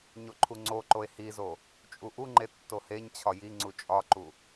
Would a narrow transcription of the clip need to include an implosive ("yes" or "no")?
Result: no